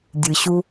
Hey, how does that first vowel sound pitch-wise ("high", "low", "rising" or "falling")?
low